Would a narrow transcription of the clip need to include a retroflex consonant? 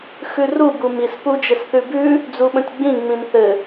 no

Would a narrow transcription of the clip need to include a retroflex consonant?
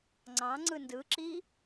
no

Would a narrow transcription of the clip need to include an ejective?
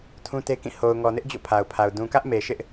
no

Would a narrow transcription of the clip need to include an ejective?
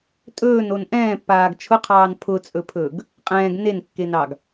yes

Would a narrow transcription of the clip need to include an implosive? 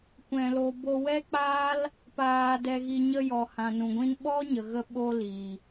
yes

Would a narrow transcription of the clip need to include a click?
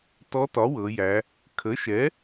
no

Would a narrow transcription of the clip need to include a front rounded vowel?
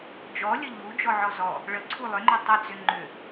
yes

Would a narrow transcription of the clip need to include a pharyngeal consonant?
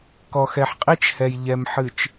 yes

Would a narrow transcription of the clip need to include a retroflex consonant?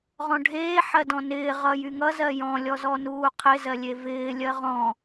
yes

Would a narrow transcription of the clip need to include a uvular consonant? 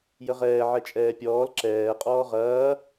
yes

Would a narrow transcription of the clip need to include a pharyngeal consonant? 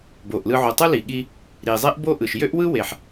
yes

